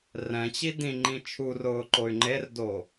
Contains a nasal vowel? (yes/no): yes